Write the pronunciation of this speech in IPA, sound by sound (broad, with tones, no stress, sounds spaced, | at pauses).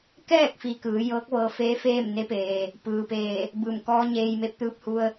k ɛː˥˨ k̚ f i˧ k ɯː˩˧ j ɤː˧˥ k̚ ʋ ɤː˧ f eː˧˥ f eː˥˨ m n e˧˥ p eː˩ | p ɯː˩ p eː˧˩ | b ɯː˧˩ m k ɔː˧˥ ɲ eː˧ j m e˧˥ p̚ t̪ ɯː˧ p̚ h u˧ ə̯